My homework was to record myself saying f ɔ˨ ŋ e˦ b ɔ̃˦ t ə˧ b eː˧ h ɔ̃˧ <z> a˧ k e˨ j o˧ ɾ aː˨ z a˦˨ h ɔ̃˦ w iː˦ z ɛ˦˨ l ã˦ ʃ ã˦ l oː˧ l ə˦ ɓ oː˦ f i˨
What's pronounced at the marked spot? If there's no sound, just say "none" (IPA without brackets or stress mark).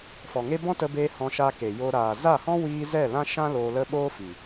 ʃ